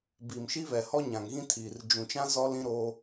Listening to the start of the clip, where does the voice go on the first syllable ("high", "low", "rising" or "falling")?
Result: low